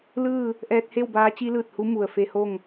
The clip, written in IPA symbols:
l ɯː˥˨ | ʔ ɛː˧ t̚ h e˥˨ w b aː˧˥ t͡ɕ i˧˥ l ɯː˧˩ t̚ h u˧˥ m u˩ ə̯ f e˧ h o˥˨ ŋ

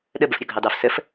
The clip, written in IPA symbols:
ɗ ə b ə f ɾʲ o ɡʱ ɑ d ɑ f s ə f

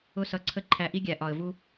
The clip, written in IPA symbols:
ʊ˦ s ʌ˧ ǀʰ ə˦ ǃʰ æ˧ ʔ i˦ ɡʲ æ˨ ʔ ɒ˨ ə̯ v u˦

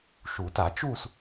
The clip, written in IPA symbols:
ʃ u˨˩˦ t a˨˩˦ t͡ʃ uː˥˧ s

